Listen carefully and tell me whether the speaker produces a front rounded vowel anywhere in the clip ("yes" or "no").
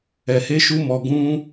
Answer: no